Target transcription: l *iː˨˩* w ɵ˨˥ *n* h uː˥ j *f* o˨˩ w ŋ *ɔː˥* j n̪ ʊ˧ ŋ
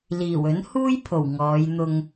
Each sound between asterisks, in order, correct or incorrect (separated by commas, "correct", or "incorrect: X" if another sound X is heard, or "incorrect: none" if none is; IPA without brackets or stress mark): correct, correct, incorrect: pʰ, incorrect: ɔː˨˧